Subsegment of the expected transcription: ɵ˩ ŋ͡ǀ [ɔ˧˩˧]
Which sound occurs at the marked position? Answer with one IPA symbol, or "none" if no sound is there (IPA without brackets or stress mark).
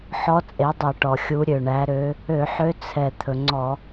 ɔ˧˩˧